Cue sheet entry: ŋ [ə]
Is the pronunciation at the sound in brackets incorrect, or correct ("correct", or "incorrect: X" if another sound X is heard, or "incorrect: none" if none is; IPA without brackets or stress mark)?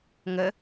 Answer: correct